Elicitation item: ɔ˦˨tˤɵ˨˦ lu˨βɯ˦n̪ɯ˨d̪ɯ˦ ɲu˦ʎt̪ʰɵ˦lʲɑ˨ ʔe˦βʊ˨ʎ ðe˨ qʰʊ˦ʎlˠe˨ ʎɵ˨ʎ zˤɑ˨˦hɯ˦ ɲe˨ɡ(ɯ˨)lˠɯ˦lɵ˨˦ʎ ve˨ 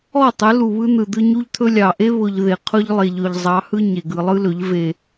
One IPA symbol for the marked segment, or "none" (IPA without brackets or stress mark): ɯ˨